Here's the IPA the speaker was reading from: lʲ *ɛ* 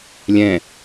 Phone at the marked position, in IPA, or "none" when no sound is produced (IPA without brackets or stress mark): ɛ̃